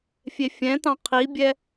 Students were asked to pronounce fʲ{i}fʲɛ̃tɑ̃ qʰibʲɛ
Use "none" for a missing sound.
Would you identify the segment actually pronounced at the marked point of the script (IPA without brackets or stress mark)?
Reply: e